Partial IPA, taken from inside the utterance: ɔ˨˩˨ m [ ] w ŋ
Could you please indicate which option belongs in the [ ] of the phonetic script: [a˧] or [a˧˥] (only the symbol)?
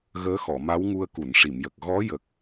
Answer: a˧˥